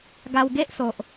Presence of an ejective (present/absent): absent